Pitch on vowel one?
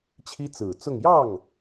high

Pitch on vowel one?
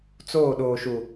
falling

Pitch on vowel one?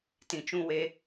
low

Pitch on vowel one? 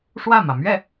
falling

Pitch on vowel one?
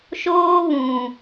high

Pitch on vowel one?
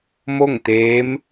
falling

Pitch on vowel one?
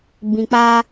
low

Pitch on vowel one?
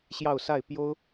falling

